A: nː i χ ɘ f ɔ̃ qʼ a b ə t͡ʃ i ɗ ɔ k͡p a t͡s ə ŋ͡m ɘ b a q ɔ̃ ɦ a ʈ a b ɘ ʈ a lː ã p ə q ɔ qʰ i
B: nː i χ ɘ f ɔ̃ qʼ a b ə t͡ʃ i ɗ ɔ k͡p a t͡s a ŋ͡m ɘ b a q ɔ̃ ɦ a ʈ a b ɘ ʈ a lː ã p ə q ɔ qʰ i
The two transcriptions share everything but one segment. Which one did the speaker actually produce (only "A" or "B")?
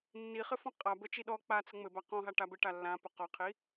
A